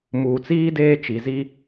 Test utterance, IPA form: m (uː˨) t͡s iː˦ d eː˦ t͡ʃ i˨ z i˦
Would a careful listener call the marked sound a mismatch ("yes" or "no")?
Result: no